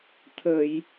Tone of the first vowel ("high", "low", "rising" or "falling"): low